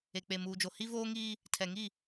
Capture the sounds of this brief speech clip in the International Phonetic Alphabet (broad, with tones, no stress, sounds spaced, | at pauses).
e˨ k͡p e˨ m uː˨ d͡ʒ o˨ h i˦ v oː˦ ŋ iː˦ | tʰ ɛ˨ ŋ i˦˨